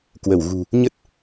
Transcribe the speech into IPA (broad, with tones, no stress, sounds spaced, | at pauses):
k w ə˧˩ w ɣ ṳ˨˩ | ɲ ə˦˥ t̚